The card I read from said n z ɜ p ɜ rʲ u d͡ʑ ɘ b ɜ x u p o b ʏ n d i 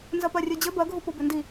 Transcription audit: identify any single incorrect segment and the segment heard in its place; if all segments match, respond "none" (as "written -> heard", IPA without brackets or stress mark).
x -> ɡʱ